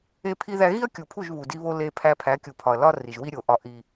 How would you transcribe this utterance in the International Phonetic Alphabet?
e˦pʰi˦ðæ˦ ɣi˦ɐ̯kʲu˨pʰu˦˨ʒ βu˨di˦βo˦ le˦pʰæ˦ pʰæ˨˦kʲu˨pʰɒ˨ɐ̯ lɒ˦ri˨ʒwi˦ ɾʲo˨˦ʔɒ˦ ʔi˦

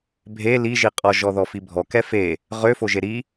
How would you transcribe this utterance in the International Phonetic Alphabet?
bʱe liʒiqʼɔʒɔ ðɔfibʱɔkɛ fe | ʁøfoʒe ɾi

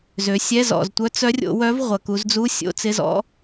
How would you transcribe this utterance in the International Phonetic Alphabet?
zø˩˧sʲɛ˧˥˧zɔ̰˩z tʷœ˧˥t͡sœ˧˥rʲo̰˩˧ wœ˧˥v ʁʷɐ˩ ku˩˧zd͡zu˧˥˧sʲo̰˧˥˧t͡sɪ˧˥˧ zɔ̰˧˥

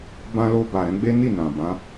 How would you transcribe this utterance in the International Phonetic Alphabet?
bã˧lo˧ba˨ ɾɛ̃˨˦ ɡ͡be˦ni˦˨ nã˨bã˨˦

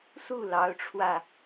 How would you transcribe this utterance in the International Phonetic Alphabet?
su˥˩lɑ˧˥ʊ̯ʈ͡ʂʰwä˧

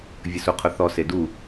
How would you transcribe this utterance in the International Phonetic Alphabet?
vʲəsuqʰʊθɔ sedu

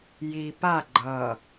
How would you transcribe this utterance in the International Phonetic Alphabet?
ji pa ɡ͡ǃʌ

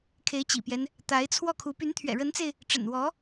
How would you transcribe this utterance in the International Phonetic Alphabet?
kʰe˧˥ɪ̯t͡ɕḭ˨˩pjɛ˦n | t̪a˧˥ɪ̯t͡sʰwɔ˥˩kʰu˧˥ py˧˥nt̪ʰɥɛ̰˨˩ɻə˧˥nt͡se˧ɪ̯ | ʈ͡ʂə̰˨˩nwɔ˧˥

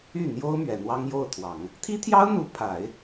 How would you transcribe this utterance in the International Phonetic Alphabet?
y˥˩n̪jo˥ʊ̯ mɥɛ˨˩n̪wɑ˥ŋjo˥˩ʊ̯t̪ʰwɑ˨˩˦ŋ | t̪ʰi˥t̪ʰjɑ˥ʊ̯n̪u˧˥ pʰa˨˩˦ɪ̯

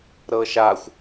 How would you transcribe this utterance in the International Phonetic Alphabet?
ɾɤʃaxʷ

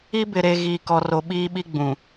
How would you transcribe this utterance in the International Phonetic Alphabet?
i˦bɪ˨ɾe˨ ɣiː˨kɔ˨ro˨ ɓiː˦ɓi˦ɡ͡bũ˨

